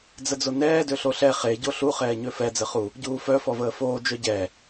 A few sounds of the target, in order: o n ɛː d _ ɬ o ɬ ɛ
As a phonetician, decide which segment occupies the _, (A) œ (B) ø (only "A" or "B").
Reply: B